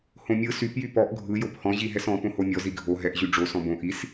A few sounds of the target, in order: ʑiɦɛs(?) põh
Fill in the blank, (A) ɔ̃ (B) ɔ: A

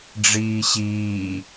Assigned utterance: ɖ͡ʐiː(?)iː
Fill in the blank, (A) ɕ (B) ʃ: A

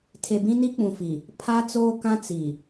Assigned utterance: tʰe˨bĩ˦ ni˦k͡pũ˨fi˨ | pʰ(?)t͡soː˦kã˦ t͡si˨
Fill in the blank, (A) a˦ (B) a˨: A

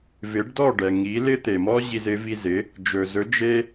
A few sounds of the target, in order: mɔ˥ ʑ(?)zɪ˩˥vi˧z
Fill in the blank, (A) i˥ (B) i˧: B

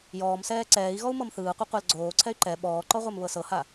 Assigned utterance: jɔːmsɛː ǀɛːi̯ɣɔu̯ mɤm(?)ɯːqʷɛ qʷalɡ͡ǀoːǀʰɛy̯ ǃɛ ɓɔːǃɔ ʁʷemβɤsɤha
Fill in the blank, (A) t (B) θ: B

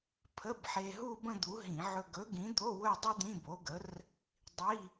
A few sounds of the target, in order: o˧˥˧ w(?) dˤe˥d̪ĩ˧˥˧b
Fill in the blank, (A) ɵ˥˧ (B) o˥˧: A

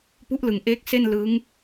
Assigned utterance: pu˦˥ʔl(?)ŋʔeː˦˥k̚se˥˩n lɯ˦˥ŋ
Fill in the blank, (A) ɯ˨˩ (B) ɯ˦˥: A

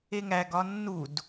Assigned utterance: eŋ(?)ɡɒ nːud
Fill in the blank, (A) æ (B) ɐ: A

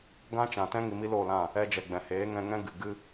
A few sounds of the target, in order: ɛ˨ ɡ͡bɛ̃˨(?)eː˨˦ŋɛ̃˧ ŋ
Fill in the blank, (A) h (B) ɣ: A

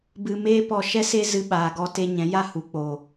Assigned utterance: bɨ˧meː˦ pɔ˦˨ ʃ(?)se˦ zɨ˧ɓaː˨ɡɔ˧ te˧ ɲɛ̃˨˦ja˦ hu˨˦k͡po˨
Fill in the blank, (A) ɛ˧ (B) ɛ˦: B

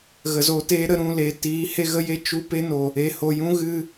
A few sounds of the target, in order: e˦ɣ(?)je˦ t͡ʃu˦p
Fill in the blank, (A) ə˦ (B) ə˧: A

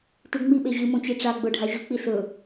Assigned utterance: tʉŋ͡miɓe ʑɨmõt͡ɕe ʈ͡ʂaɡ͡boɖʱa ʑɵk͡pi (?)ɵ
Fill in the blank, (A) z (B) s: B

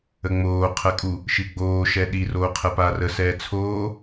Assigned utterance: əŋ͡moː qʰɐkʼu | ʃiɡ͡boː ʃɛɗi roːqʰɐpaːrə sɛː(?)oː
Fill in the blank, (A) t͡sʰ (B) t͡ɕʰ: A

